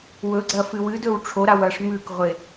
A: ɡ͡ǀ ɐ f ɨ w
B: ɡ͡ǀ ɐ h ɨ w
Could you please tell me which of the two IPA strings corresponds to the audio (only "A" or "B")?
A